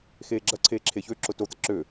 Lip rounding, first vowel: unrounded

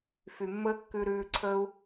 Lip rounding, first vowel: rounded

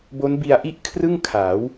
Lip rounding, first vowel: rounded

